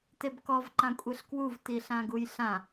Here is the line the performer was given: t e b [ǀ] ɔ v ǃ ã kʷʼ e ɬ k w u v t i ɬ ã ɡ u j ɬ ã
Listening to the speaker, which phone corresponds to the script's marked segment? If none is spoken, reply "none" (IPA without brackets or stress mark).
k